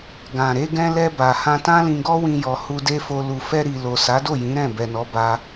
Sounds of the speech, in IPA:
ɡ ã˨ ɾ e˧ ɡ ɛ̃˧ l ɛ˧ b a˨ h ã˧ t ã˦ l ĩ˧ ɡ ɔ˦ w ĩ˧ j ɔ˨ h u˧ d e˦ f o˧ l u˨ f ɛ˧ ɾ i˨ l o˨ s a˨˦ d o˦˨ j ĩ˨˦ ɾ ɛ̃˦˨ b ɛ˨ n ɔ˨˦ b a˧

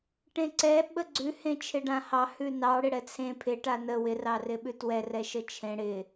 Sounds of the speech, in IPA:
ʈ ẽ ǀ ɛ ɓ ə ɡ͡ǀ ʉ h ẽ t͡ʃʰ ɪ ɖ ã h ɑ h ʉ n ɑ ɽ ɪ ɽ ɛ t͡sʰ ẽ pʰ ɪ ʈ a n ə w ɪ r ɑ r ɪ ɓ ʉ t w ɛ r ɛ ʃ ə t͡ʃʰ ẽ ɽ ɪ

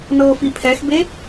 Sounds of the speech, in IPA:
n ɤː f i pʰ ɛ x b e

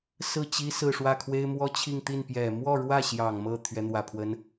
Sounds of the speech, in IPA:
s ɹ̩˥˩ t͡ɕ i˥ s ɹ̩˥˧ ʂ w ä˥˩ kʰ w e˥ ɪ̯ m w ɔ˥ t͡ɕʰ i˥˧ ŋ t̪ i˥˩ n p j ɛ˨˩ m w ɔ˥˧ ɻ w ä˥˩ ɕ j ɑ˨˩ ŋ m ɤ˥˩ t̪ʰ ɥ ɛ˧˥ n̪ w ä˨˩ pʰ w ə˧˥ n

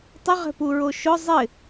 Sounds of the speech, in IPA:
tˤ ɪ ʁ ɛ̤ p u ɹ o ʃ ʊ zˤ ɪ

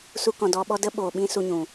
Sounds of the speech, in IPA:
s u˧ k ɔ̃˨ d ɔ˧ ɓ ɔ˦ d ə˦ ɓ oː˨ ɓ ĩ˧ s u˧ ɲ ũ˨

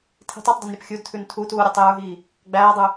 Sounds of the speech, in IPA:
tʰ i̤ tˤ ɛ tˤ dˤ i n ɾʲ ɐ p xʲ u d tʰ ʉ n tʰ u t uː ɾʲ a tˤ j ə˞ ɦ iː | ɡ͡b æː dˤ ʉ

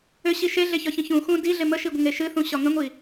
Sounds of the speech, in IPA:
ʏ ɕ i ʃ e ɮ e ç ɒ ç ə̃ ç ũ x ũ d i ɮ e m ə ʃ i ɡʷ ə ŋ e ʃ ɨ θ ũ ɕ ɒ ŋ ə̃ ŋʷ i

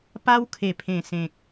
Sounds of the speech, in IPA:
p a˦ w kʰ e˨˩ pʰ ẽ˨˩ s ẽ˨ k̚

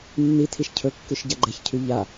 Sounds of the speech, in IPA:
nː i tʰ i ʃ cʰ ɵ kː ʉ ʃ ɟ a ɡ͡ǃ ɛ ç cʰ ʉ ʎ a

